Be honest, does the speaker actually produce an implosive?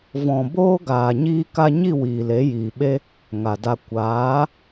yes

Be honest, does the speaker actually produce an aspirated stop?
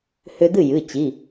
no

